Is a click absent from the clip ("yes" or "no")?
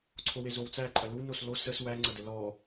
no